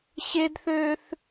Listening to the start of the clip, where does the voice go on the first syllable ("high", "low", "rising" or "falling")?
high